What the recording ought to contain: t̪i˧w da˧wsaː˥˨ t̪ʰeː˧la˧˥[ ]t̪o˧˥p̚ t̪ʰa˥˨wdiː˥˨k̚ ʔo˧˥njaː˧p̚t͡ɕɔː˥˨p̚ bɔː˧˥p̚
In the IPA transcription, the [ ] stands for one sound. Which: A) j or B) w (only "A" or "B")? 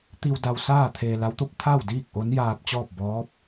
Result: B